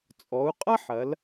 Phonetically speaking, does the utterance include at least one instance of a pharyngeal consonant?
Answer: yes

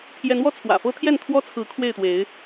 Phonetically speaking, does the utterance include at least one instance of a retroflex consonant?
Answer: no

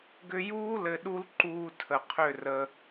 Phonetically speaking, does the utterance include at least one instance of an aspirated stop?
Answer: yes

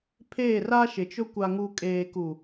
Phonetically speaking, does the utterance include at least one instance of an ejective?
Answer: yes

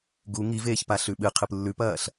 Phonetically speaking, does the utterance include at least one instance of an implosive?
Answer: yes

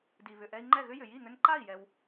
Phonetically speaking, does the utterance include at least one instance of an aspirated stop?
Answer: no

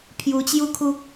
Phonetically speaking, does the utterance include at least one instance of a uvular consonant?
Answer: no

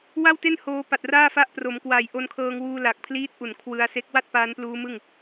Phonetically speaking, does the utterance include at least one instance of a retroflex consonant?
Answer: no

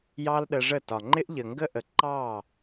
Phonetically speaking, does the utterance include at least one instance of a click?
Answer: yes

